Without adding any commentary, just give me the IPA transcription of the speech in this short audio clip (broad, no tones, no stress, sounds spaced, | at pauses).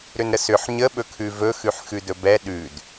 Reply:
ɾ ʏ n ɾ ə s ʏ ħ ɲ ə ɓ ɵ kʰ ʉ v ɵ x ʉ ħ x ʉ d ɵ b ɛ ɗ ʉ d